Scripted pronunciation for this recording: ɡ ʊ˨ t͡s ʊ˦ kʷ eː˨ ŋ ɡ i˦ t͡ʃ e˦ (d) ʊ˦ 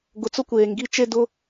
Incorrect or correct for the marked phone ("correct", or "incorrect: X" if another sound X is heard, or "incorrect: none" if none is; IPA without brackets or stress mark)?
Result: correct